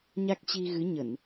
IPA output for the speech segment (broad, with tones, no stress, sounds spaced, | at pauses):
ɲ a˦˥ k̚ t͡ɕ i˧ ɣ ɨ˨˦ ɲ ə˧˩˨ n